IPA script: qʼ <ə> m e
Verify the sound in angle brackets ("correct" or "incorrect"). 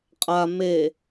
incorrect